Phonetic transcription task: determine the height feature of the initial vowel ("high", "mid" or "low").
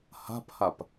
low